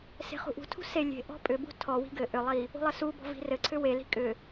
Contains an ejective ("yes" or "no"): yes